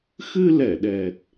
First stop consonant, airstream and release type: implosive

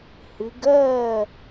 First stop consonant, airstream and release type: plain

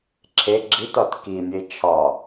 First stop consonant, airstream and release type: click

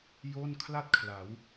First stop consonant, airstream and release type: aspirated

